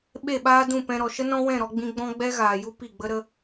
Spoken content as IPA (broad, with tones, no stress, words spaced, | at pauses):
ɓe˦˨ɓaː˦dũ˦˨pɛ̃˧ ɾɔ˨ʃə˦ nɔ̃˦wɛ̃˦˨ɾɔ˧ ɡ͡bĩ˧ɡ͡bɔ̃˦ ɡ͡bɛ˦ɣaː˨ju˦ pi˦˨ɡ͡bə˦ɾə˦